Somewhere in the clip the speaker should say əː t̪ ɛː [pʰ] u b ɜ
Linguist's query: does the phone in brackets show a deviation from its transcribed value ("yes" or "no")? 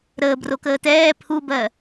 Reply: no